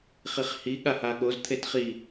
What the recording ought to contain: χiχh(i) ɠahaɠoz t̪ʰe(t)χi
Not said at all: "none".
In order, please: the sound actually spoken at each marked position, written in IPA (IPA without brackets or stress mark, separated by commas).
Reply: i, t